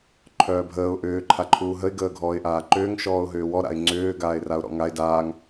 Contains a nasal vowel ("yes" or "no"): no